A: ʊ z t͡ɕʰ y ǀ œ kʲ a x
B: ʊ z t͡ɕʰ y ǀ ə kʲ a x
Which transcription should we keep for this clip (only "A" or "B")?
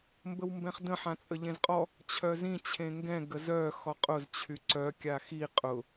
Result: A